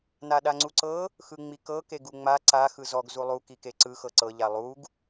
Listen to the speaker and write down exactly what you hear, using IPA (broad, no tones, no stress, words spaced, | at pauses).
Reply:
naɗaŋ͡ǀuǀɤ | xɯŋ͡mikɤ keɡuŋ͡ma ǀa xɯzɔɡ zulˠu kikeǀɯ xɤǀɤ ʎalˠuɡ